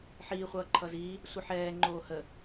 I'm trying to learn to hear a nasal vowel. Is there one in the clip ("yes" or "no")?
no